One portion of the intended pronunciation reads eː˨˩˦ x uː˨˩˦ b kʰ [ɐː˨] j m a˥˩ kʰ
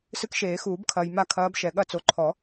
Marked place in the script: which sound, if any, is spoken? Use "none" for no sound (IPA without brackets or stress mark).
ɐː˨